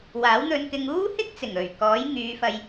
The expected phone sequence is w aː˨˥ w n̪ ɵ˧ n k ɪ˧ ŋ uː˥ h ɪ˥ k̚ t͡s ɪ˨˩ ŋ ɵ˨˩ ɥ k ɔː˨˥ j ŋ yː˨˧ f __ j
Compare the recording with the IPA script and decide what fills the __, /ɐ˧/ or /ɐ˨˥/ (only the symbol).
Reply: ɐ˧